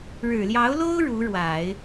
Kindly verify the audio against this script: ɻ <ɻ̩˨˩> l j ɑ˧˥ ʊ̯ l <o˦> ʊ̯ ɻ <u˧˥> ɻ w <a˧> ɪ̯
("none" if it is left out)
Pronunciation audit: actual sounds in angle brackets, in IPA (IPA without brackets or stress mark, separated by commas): ɻ̩˨˩, o˥, u˧˥, a˨˩˦